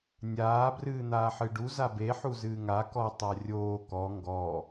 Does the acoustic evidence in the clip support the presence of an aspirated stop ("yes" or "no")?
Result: no